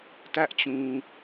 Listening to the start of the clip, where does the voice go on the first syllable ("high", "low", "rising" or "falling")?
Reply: high